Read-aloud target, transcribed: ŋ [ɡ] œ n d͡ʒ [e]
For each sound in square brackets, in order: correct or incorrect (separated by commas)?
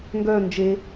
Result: correct, correct